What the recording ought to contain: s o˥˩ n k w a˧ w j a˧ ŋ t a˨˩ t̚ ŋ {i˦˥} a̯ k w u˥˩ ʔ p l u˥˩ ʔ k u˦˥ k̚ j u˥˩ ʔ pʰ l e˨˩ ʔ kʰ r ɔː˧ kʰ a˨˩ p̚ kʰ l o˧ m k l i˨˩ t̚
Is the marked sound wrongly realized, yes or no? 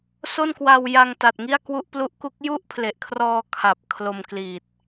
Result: yes